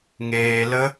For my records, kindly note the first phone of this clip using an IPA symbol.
ŋ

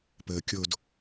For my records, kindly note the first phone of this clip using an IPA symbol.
p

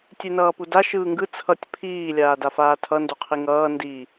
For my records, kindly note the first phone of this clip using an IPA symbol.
tʲ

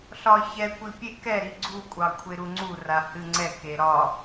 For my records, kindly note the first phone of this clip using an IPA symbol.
ɬ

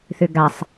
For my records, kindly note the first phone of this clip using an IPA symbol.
θ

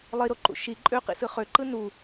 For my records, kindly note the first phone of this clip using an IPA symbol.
lˠ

